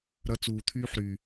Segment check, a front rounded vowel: present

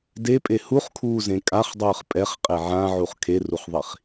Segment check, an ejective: present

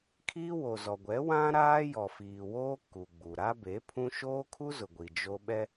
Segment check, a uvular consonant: absent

